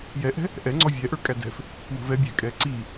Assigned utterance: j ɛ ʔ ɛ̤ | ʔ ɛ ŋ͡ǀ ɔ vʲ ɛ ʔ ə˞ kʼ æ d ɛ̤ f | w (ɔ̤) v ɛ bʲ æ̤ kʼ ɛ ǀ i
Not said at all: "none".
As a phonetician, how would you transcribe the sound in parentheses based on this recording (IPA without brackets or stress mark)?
ə̤